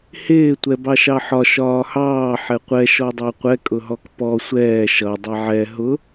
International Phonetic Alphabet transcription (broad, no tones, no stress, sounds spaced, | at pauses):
h ɪː tʷ ɛ b ɑ ʃ ɑ ħ ɒ ʃ ɒː h ɑː ħ ɛ qʷ ɛ ʃ ɔ dˤ ɑ qʷ ɛ kʼ ʊ ɦ ɔ k p ɔ sʷ ɛː ʃ ʌ dˤ ɛ ʕ ɛ ɦ ʊ